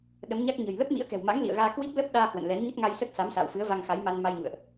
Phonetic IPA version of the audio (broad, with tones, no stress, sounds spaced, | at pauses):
ɗ ə˨˦ m ɲ a˦˥ k̚ ɲ ə̤˨˩ j l ə˦˥ p̚ m ḭ˧˥ ə̯ k ɛ̤˨˩ w m a̰˧˥ ŋ l ḭ˧˨ ə̯ ɣ aː˧ k w i˦˥ p̚ l ə˦˥ p̚ ɗ aː˧ h w ə̰˧˨ n l ɛ˨˦ n ɲ ə˦˥ t̚ ŋ a˧ j s ə˦˥ t̚ s a˨˦ m s a̰ː˧˨ w f ɨ˨˦ ə̯ v a˧ ŋ x a˨˦ j m a˧ n m a˧ j ɲ ṵ˧˨ ə̯ ʔ